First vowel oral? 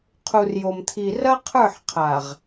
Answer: yes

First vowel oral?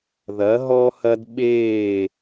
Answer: yes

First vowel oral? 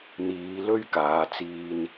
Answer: yes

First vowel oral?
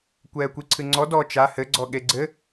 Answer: yes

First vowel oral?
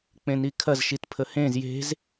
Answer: no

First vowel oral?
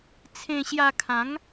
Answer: no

